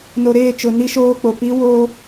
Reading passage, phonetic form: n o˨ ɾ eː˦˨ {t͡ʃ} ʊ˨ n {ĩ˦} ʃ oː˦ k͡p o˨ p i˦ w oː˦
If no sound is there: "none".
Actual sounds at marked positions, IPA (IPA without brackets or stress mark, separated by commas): t͡ʃ, i˦